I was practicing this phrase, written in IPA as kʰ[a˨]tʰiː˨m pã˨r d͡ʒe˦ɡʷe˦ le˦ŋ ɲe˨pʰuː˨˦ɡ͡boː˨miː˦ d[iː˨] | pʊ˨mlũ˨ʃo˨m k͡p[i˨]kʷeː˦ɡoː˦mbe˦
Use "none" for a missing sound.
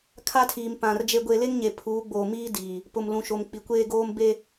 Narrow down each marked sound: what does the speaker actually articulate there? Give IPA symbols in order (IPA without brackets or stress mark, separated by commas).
a˦, iː˨, i˨